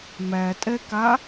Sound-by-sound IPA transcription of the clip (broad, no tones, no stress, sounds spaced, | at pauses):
m æ tʼ ɛ k a